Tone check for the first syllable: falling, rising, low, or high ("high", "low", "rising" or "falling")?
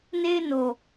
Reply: high